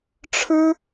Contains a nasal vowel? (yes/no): no